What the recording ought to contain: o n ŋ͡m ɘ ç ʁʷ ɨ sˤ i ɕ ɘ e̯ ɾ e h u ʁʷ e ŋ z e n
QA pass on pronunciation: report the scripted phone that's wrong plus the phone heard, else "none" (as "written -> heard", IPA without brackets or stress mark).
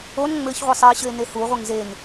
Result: ɾ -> n